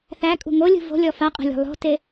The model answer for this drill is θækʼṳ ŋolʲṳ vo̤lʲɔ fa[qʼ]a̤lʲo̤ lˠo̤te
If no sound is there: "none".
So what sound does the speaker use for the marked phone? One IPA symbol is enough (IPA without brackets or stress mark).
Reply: qʼ